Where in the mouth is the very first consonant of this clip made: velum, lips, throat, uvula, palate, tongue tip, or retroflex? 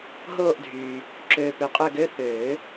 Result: throat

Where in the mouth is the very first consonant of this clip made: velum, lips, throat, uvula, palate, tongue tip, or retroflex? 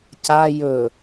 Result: palate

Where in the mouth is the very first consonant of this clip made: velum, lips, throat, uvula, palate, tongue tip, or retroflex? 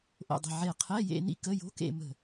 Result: throat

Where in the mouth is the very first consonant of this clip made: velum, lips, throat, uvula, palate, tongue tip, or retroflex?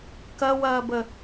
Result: velum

